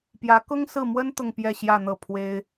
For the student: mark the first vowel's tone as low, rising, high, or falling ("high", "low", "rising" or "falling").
rising